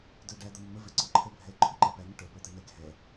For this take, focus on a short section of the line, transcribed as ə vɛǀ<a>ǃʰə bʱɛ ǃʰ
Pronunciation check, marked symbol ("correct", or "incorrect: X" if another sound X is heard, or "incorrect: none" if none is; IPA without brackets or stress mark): incorrect: ʌ